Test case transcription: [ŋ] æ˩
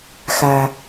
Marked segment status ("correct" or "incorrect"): incorrect